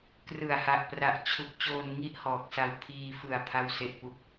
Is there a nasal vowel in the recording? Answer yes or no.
no